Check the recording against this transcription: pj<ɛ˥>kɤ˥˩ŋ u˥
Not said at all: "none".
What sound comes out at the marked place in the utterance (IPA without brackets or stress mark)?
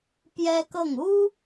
ɛ˥